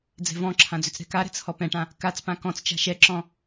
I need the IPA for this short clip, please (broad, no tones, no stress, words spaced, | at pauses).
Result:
d͡zɛ̤vɔ̃ǁʰã d͡zʏt͡sɾɛ̤kaɾɛ̤t͡s hɔpɛ̃ʈã | kat͡spã kɔ̃t͡st͡ʃa̤ ʃɛǁɔ̃